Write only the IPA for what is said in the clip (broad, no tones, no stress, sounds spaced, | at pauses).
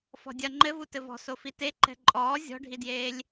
f ɔ̤ dʲ ɐ ŋ͡ǃ ɘ v u t ɘ v ɔ̤ s o f i t e ǃ ɛ̤ ǃʼ ɔː zʲ ɔ̤ ɖʱ i d j eː lʲ